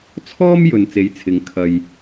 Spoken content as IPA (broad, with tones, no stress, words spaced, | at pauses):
t͡sʰɔː˥m jɵ˨n t͡se˨˥jt͡sʰɪ˨˧ŋ kʰɐ˨j